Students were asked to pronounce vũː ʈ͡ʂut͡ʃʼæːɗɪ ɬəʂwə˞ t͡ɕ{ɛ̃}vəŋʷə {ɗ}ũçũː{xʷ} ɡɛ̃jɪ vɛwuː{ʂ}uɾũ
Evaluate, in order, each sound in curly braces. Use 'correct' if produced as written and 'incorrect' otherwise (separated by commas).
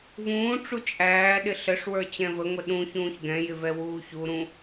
correct, correct, incorrect, incorrect